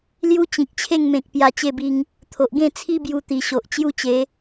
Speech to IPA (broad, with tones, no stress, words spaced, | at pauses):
lju˦t͡ɕĩ˨k̚t͡ɕʰe˥˧ŋmẽ˨k̚ pja˧t͡ɕe˥˧bi˧ŋ | t̪ʰo˨ʔɡẽ˥˧t͡sʰi˦ bju˧t̪i˨˩ɕo˨ʔ t͡ɕju˦t͡ɕe˨˦